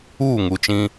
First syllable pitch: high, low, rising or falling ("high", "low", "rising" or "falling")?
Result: falling